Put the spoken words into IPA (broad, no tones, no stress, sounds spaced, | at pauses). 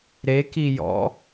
ɾ e k i j ɔ̰